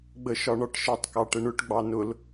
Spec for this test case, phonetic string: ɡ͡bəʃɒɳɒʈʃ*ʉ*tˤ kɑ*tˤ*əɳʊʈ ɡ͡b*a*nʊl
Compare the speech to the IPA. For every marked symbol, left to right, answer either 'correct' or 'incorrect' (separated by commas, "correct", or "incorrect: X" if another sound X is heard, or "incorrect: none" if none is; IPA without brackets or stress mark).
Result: incorrect: ə, incorrect: ʈ, incorrect: ɑ